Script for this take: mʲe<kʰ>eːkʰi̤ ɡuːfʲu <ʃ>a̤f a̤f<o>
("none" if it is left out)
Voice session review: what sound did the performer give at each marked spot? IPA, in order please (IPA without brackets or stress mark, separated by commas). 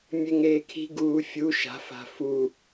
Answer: ŋ, ʃ, u